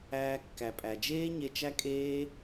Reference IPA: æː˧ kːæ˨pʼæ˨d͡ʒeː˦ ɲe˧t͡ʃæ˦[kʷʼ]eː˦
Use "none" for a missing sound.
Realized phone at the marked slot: kʼ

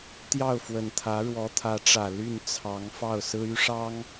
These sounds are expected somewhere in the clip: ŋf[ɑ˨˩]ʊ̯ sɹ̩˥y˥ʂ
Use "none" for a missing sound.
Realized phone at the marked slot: ɑ˥˩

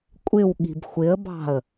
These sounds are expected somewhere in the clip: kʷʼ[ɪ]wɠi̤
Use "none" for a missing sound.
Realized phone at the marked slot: ɪ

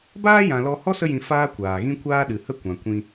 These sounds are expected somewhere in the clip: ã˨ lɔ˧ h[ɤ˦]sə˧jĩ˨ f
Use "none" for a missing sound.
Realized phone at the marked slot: ɔ˦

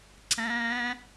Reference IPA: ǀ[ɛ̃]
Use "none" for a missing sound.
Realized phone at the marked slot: æ̃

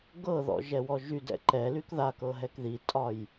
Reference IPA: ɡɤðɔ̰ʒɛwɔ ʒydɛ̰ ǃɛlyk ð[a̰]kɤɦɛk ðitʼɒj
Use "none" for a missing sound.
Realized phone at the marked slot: a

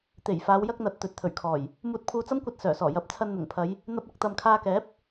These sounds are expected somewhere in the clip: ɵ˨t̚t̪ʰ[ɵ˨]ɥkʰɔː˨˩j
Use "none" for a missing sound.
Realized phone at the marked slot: ɵ˨˩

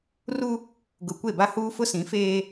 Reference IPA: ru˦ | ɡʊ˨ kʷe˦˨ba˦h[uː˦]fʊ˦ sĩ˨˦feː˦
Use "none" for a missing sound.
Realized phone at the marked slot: uː˦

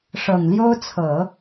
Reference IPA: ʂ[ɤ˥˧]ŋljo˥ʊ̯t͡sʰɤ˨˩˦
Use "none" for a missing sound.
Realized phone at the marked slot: ɤ˨˩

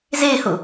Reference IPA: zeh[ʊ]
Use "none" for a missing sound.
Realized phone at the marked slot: ʊ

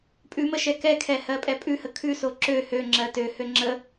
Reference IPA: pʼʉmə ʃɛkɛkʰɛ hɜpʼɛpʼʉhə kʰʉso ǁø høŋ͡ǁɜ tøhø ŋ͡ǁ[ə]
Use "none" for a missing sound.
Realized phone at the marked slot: ə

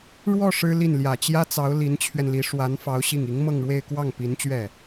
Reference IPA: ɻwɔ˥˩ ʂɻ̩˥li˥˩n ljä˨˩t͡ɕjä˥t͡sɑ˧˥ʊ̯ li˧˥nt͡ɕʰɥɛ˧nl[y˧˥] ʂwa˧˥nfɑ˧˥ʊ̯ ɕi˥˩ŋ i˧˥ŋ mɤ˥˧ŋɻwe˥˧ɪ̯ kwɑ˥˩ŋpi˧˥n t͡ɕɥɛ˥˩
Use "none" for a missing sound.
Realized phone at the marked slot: i˧˥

